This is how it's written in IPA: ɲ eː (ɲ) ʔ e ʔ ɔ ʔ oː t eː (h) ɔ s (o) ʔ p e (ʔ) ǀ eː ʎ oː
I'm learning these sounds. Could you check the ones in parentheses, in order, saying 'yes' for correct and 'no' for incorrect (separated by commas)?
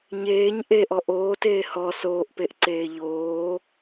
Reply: yes, yes, no, yes